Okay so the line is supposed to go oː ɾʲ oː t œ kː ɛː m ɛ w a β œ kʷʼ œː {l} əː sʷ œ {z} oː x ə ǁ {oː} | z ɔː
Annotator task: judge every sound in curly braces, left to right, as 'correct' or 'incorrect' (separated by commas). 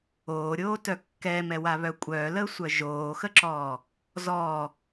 correct, incorrect, incorrect